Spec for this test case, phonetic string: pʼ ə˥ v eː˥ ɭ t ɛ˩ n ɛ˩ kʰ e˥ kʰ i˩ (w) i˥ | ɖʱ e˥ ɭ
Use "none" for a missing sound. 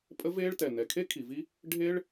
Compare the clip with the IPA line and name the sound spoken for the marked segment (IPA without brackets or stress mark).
v